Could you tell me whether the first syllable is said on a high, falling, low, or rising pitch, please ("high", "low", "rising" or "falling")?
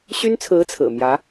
high